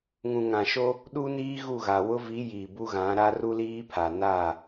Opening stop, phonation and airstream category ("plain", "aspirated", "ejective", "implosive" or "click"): implosive